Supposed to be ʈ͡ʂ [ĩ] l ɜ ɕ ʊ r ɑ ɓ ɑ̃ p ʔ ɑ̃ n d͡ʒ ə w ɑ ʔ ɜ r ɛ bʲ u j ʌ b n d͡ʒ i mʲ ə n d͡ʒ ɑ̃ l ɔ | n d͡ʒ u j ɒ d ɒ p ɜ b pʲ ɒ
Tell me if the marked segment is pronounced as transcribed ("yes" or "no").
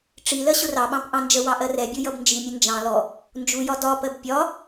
no